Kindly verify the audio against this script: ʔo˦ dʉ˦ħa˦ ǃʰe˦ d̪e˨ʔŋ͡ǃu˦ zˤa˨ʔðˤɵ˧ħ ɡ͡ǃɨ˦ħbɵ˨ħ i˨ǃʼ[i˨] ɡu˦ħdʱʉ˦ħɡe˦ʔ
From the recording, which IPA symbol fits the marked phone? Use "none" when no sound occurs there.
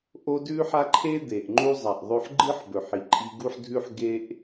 i˧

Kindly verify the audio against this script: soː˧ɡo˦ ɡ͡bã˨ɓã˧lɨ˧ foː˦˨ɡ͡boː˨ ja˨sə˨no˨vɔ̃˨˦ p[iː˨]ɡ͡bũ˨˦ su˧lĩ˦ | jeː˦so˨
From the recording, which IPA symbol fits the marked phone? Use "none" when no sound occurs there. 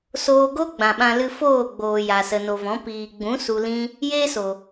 iː˨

